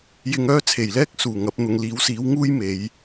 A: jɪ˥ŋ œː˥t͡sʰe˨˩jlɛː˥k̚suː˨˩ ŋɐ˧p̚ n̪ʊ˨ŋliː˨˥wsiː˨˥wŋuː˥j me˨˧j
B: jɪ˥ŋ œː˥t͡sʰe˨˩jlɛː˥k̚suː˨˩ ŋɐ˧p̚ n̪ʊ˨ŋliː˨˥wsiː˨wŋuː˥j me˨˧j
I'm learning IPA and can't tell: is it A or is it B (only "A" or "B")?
A